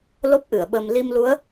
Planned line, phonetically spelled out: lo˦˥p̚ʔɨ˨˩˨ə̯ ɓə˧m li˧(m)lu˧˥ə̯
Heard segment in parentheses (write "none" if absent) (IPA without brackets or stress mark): m